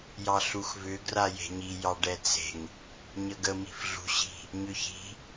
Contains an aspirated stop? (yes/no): no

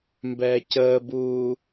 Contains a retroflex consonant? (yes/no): no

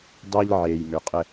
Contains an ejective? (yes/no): yes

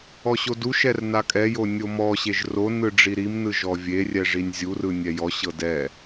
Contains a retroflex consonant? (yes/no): yes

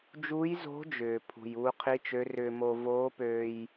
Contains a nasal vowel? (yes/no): no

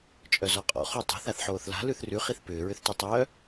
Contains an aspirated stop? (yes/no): no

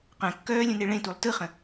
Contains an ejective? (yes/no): no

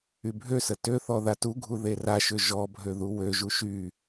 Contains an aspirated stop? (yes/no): no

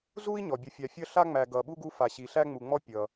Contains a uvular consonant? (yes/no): no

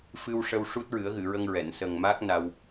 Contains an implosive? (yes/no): no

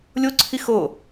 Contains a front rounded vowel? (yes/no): no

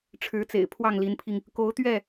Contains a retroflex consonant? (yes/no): yes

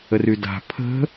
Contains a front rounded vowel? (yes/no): yes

